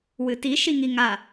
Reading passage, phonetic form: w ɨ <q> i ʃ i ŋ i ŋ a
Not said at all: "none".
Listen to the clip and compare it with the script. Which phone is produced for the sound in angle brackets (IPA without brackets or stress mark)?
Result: t